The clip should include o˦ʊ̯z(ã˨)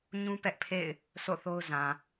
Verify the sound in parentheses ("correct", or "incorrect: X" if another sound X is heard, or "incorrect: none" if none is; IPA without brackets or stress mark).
correct